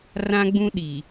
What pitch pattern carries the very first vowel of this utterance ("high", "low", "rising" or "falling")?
high